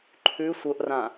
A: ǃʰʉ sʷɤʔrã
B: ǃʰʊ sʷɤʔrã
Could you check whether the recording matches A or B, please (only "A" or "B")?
A